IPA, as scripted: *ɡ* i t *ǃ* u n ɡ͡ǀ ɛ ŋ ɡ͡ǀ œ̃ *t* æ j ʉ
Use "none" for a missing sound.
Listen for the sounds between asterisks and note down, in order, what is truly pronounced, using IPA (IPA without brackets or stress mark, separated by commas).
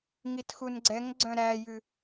ŋ, x, ɾ